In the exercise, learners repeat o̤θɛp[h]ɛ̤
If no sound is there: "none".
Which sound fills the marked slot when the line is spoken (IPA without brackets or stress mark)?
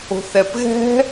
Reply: ɣ